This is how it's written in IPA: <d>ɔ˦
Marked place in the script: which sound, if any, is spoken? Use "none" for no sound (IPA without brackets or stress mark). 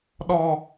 ɗ